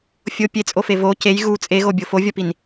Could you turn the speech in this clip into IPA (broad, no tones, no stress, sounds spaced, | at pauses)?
fʲ o pʲ e t͡sʼ o f e v o c e j ɣ u t͡sʼ e ɣ o bʲ o f o vʲ ɒ p i n